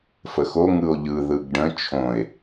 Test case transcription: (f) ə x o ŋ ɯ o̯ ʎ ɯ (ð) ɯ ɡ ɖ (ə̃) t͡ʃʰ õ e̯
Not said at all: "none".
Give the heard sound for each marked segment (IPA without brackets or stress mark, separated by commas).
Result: f, ð, ə̃